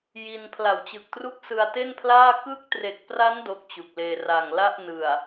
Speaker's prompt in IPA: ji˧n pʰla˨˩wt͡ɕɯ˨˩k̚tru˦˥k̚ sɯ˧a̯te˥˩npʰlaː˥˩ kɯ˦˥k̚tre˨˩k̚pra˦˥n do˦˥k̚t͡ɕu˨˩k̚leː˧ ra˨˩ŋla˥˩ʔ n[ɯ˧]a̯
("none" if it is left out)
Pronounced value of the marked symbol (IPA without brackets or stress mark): ɯ˨˩